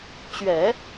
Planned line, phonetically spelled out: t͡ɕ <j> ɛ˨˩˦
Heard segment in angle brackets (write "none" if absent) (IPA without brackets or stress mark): ɥ